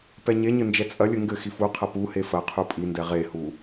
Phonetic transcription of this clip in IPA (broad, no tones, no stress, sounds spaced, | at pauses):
p ɛ ɲ e ɲ ɘ n d͡ʒ ɛ t͡sʼ ɐ lʲ ɘ ŋ ɡ ɘ x i f u qʰ ɐ p u h e f ɐ qʰ u pʼ i n d ɛ ʁ e h u